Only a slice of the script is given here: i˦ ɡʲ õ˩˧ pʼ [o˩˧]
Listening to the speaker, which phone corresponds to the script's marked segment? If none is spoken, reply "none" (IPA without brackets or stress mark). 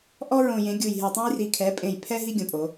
o˩˧